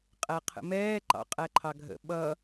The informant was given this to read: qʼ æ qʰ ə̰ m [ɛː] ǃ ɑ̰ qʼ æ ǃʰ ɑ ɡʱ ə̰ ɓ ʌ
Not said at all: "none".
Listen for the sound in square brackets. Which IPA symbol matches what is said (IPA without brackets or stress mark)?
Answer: ɛː